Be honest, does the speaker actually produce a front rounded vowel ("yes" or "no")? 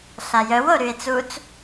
yes